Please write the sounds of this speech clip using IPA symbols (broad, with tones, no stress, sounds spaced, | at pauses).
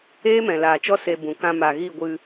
eː˦ m ɛ̃˨ l aː˨ t͡ʃ ɔ˦ s e˧ b ũ˨ k ã˧ m a˨ ɣ i˦˨ ɡʷ ɨ˧